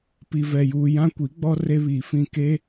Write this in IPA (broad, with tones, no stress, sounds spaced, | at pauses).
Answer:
p i˨ v ɛ˨ j uː˨ j ã˦ kʷ i˨˦ ɡ͡b ɔ˦ r e˦ β iː˨ f ĩ˦˨ k e˦